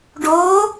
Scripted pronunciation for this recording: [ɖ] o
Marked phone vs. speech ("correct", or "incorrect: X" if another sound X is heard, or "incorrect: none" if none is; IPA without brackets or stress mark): correct